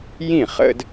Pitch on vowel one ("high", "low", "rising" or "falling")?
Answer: falling